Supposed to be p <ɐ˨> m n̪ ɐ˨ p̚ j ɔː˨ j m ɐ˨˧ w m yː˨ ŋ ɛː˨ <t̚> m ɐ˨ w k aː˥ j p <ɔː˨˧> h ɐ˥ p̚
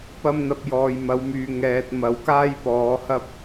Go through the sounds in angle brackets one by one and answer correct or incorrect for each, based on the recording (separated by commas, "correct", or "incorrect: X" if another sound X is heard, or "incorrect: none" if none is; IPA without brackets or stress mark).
incorrect: ɐ˧, correct, correct